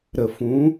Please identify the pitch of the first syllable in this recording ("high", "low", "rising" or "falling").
low